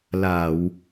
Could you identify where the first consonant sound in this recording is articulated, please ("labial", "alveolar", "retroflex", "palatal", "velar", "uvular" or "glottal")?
alveolar